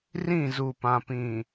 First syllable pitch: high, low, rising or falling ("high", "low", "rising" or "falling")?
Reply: falling